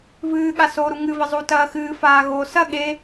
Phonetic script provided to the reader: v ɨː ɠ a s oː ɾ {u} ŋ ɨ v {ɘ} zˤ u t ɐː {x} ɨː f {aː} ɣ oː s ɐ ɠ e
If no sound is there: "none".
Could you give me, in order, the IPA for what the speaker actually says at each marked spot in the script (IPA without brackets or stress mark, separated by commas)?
u, ɘ, x, aː